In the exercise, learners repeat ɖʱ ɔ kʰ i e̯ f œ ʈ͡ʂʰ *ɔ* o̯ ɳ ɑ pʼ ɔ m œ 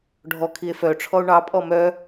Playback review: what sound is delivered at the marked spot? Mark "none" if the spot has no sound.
ɔ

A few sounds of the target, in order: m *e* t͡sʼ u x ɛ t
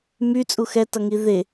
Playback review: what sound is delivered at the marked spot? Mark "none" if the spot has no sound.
y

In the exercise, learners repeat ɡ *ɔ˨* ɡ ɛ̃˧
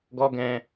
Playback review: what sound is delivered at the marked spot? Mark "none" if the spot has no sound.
ɔ˦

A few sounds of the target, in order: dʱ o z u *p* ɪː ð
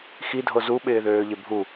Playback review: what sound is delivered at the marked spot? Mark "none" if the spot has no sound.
ɓ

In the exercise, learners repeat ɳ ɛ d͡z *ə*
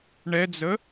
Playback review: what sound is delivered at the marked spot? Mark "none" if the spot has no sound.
ə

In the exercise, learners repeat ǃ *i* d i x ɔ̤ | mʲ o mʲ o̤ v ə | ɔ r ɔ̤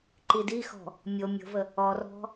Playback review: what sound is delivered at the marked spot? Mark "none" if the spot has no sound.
i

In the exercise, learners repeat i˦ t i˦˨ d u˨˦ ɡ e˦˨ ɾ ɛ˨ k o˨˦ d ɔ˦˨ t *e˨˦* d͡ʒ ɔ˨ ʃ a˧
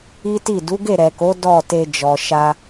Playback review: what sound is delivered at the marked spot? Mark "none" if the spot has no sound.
e˧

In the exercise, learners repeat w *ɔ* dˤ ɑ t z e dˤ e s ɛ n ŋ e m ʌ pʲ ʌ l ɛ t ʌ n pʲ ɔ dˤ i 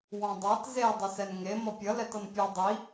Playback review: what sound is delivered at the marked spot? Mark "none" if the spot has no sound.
ɔ̃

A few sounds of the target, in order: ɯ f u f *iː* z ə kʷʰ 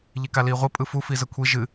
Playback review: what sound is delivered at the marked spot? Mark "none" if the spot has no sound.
i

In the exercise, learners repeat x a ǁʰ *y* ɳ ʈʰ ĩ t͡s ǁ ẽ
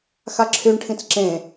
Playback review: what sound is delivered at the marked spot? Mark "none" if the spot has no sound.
y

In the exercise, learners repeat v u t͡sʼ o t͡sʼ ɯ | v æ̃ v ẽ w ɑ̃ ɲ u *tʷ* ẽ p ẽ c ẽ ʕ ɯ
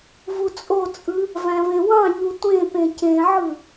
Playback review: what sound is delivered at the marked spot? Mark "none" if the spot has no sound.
tʷ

